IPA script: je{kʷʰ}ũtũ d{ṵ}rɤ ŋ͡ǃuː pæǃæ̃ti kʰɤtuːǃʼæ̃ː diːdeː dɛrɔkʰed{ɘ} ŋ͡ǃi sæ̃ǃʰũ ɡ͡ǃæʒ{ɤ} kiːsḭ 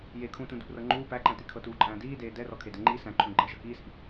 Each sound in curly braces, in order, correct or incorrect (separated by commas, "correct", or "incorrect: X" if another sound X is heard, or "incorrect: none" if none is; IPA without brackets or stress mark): incorrect: kʰ, correct, correct, correct